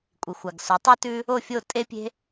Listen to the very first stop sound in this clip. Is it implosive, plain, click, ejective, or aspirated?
ejective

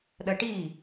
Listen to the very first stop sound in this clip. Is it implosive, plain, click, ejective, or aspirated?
implosive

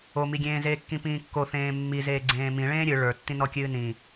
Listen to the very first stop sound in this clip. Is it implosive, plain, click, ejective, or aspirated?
plain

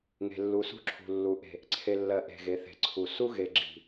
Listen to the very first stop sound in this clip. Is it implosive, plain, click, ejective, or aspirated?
click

